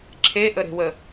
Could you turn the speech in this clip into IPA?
ǁʰeʔəɾe̤wə

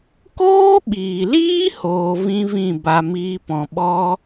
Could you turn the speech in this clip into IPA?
koː˦ɓiː˨liː˦ hoː˧vĩ˦vĩ˦˨ ba˧miː˦pɔ̃˧ ɓɔ˦

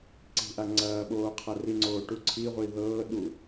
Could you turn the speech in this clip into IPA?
ǀi̤ʔa ŋ͡ǀɐː ɓoːqʰariŋ͡ǀoː ʈuǀʰiʁʷi ðɤːɗu

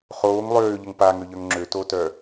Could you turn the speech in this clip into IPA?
χoːŋ lˠøːʎəŋ paŋøʎœŋ ŋ͡ǁøtotœ

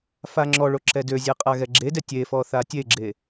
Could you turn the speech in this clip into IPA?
faŋ͡ǁɔɭo ǁɛdøzʲɛ qʼaɣɛɡ͡ǁedɛ tʲefɔ θatʲeɡ͡ǁe

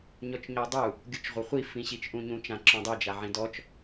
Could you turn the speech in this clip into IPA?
ɲɔt͡ʃɲɔdˤu | ɡʲut͡ʃʁʷaχʷi fĩɕit͡ʃʔũɲũ t͡ʃãǁɔ̃dˤi d͡ʒaʕĩdɔt͡ʃ

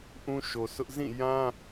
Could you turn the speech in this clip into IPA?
ʔũ˦ʃo˨sʊ˦ʔ zĩ˦˨jã˦

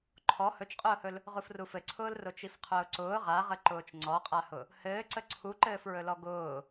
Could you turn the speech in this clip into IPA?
ǃʰɔ hɵt͡ʃqʼʊːhɵl | ʁufrufɘǀʰʊːl rʊt͡ʃifqʰʊːǀʊː ʁaʁə ǃʊːt͡ʃŋ͡ǀɔqʼahʊ | hɘːǀə ǀʰuǃɘːfɹɵlɔ ɡʊː

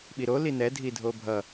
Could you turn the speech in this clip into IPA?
ɓiɾo linɛ dʱidʱobʱʌ

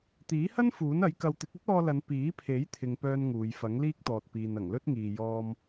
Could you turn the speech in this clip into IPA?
t̪iː˨˥hɐ˥n fuː˨˥nɐ˨˥jkɐ˧w t̪ɪ˨˥k̚ɵ˥t̚ɔː˧lɐ˨˧n piː˨˥pʰe˨˥jt̪ʰɪ˨ŋ pœː˥nŋuː˨˧j fɐ˨˥ŋliː˥k̚t̪ɔː˨t̚ piː˨nɐ˨˩ŋlɵ˥t̚ŋiː˨ jɔː˧m

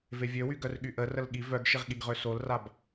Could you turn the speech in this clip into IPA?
vevʲøwy ɡœrɠyʔə rəlɠi vœɡʃiʁɠiɡʁø solrab

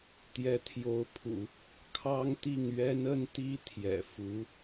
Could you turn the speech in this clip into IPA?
t̪jɛ˧˥t̪ʰjo˧˥ʊ̯pʰṵ˨˩˦ | kʰɑ˥ŋt̪i˥˩ŋ ɥɛ˥nə˥n t̪i˥t̪ʰjɛ̰˨˩fu˧˥

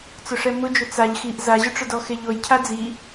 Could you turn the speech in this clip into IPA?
t͡sʊʂɛmʊd͡ʒʊ t͡saʎ xiʔ zaʑʊʈ͡ʂʊdɔ xeʎojcʰa d͡zi

